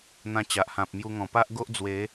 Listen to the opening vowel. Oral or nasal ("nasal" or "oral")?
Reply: nasal